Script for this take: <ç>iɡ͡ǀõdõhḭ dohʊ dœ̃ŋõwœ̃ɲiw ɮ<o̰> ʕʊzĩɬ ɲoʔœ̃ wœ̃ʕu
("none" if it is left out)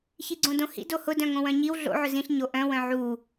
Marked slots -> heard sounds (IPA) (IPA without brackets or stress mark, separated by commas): ç, o̰